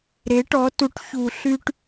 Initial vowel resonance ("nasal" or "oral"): oral